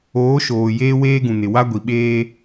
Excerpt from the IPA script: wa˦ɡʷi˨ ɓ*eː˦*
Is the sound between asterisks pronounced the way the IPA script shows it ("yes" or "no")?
yes